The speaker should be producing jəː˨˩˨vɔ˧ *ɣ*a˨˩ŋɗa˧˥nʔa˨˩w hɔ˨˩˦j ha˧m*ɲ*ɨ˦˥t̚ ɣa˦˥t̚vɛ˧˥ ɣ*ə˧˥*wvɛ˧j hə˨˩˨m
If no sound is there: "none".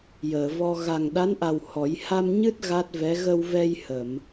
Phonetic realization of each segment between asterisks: ɣ, ɲ, ə˧

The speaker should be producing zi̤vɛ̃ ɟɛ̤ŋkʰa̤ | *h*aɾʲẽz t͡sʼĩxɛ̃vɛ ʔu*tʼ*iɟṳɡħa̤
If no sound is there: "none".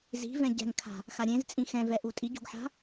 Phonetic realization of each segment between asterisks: x, tʼ

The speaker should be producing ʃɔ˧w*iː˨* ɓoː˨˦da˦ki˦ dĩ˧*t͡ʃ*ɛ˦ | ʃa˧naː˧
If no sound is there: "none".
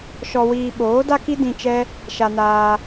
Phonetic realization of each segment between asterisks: iː˧, t͡ʃ

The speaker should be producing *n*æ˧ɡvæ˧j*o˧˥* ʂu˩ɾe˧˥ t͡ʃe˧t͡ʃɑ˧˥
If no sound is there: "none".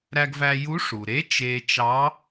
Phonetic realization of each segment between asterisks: ɾ, u˧˥

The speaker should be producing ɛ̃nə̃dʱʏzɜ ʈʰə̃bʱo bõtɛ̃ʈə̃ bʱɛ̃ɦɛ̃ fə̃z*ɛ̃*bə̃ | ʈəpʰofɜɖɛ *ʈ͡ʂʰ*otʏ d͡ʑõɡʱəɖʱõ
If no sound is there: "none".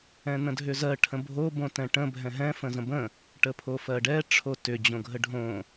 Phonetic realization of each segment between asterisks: ə̃, ʈ͡ʂʰ

